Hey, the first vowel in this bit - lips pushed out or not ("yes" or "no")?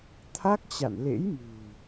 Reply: no